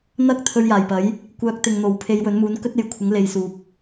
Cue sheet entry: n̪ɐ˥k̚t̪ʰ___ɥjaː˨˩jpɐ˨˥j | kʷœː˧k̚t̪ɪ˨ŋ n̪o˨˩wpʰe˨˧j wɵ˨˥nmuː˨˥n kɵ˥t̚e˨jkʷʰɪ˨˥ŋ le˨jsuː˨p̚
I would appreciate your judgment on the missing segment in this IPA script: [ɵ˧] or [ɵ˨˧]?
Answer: ɵ˧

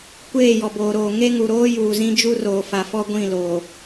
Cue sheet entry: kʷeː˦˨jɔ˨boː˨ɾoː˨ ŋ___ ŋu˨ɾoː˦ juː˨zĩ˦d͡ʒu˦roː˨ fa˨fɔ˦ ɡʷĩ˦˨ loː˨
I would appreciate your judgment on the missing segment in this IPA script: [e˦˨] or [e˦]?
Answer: e˦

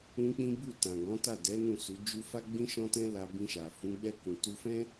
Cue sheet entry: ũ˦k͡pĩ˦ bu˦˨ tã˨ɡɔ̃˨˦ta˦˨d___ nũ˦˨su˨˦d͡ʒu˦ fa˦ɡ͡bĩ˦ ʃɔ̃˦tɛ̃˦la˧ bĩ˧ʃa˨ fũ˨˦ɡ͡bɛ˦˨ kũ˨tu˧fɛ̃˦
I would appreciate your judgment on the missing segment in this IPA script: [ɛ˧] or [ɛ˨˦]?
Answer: ɛ˨˦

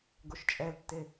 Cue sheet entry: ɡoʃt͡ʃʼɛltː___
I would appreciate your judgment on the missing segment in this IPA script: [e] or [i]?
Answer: e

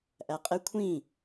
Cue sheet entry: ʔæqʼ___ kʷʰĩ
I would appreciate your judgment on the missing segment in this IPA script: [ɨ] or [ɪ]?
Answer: ɪ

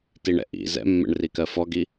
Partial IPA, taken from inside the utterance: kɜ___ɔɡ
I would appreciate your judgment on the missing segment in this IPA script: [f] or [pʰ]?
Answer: f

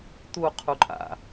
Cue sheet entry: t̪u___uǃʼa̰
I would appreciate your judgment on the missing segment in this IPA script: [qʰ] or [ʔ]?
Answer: qʰ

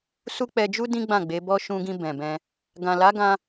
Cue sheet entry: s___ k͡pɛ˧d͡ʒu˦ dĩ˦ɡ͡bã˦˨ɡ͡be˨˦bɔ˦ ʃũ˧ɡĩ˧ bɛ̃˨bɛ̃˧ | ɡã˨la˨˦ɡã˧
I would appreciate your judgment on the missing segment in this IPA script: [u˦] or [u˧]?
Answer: u˦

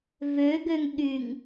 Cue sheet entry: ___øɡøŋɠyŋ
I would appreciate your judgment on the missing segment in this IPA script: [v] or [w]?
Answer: v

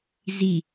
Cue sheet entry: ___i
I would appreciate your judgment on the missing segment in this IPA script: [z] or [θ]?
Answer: z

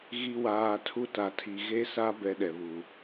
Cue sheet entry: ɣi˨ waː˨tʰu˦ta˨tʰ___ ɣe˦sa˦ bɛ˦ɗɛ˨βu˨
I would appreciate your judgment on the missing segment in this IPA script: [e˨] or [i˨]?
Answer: i˨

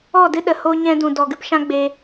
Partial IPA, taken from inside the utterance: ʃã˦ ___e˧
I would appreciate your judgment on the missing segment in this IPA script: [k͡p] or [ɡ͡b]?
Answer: ɡ͡b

